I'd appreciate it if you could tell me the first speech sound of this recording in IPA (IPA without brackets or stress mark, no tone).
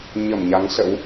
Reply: ɲ